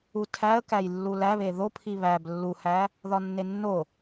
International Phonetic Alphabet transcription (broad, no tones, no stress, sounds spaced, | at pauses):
u tʰ æ ə̯ k æ j lː u l æ β e ð o pʰ i β æ b lː u h æ | ð ɒ nː e nː o